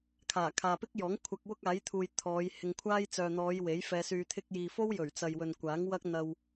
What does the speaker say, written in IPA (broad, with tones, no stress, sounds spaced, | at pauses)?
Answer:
kʰ aː˨˩ kʰ aː˨ p ɪ˥ k̚ j ɔː˨˥ ŋ kʷʰ ɐ˧ k̚ w ʊ˥ k̚ aː˨˥ j t̪ʰ uː˨ j t̪ʰ ɔː˨˧ j h ɪ˨ ŋ kʷʰ aː˥ j t͡s œː˨ n̪ ɔː˨˧ j w e˨˥ j f ɛː˧ s yː˧ t̪ʰ ɪ˧ k̚ j iː˨ f o˥ w j ɵ˨˩ ɥ t͡s ɐ˨ j w ɵ˨ n kʷ aː˨˥ ŋ w ɐ˥ k̚ n̪ ɐ˧ w